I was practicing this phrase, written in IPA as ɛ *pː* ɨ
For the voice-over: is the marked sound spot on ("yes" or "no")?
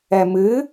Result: no